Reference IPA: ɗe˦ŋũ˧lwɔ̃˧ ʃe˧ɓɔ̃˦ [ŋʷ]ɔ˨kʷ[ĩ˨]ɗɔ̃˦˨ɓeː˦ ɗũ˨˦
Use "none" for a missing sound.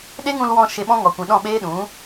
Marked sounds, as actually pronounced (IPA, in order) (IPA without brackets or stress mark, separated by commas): ŋ, ĩ˨